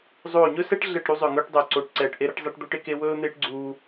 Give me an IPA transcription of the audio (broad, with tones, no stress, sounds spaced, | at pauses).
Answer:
zˤ oː˦˨ ɲ ɵ˥ s ɛ˥ ʈ ɮ ɛ˦˨ ʈ ɾ u˥ zˤ ɵ˦˨ ŋ ɵː˥ ʈ dˤ o˦˨ ǀ oː˦˨ ʈ ǀ ɛː˦˨ ʈ ʔ e˥ ɾ ɛ˥ ʈ zˤ ɛ˥ ʈ d̪ o˥ ʈ e˥ k e˥ w ɵː˥ n̪ eː˥ ʈ ɡ͡ǀ uː˥